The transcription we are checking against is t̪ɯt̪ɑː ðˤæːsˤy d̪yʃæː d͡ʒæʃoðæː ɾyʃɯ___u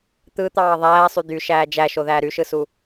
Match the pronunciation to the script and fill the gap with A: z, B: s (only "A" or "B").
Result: B